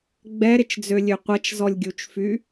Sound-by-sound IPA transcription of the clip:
ɡ͡b ɛ ɾ ɪ t͡ʃ d͡z ø lʲ ø qʷ ɐ t͡ʃ z ɔ lʲ ɡʲ u t͡ʃ f y

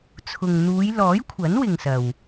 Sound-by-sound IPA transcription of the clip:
t͡sʰ ʊ˨ ŋ n̪ uː˨˧ j l ɔː˨˥ j kʷʰ ɐ˨˥ n w ɪ˨ ŋ s ɐ˨ w

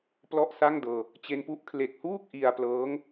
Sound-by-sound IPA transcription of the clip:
p l ɔ˥˩ ʔ s a˥˩ ŋ d ɤː˧ | t͡ɕ e˧ n p u˦˥ ʔ kʰ l e˨˩ k̚ h uː˥˩ k̚ ʔ i˧ a̯ p l ɤː˦˥ ŋ

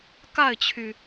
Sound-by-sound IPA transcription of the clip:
k a˥˩ ɪ̯ t͡ɕʰ y˩

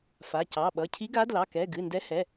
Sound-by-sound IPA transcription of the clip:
f a˩˧˩ c ɑ˩˧˩ ɓ ʌ˩˧˩ cʰ i˧˥ ɡ a˧˥ d l ɑ˩˧˩ k ɛ˩˧˩ ɡ ɨ˩˧˩ n d ɛ˧˥ h ɛ˩˧˩

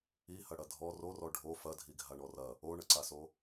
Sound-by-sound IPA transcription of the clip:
i h ɐ ɽ ɐ dʱ ɔ r o r ɔ ɖʱ o f ɐ dʱ i ɡʱ a ɳ ɔ r ɐ | o ɳ ə ǀ a s o

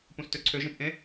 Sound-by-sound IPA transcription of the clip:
p ũ s t ø ǀʰ ø ʒ ẽ p ʔ ẽ

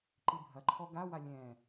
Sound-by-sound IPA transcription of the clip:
ǃ i bʱ ɐ ǃʰ ɔ ɡ a w a lʲ ɛ̃

